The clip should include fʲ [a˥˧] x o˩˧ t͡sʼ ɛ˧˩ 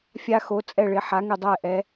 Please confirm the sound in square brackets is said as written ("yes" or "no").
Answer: no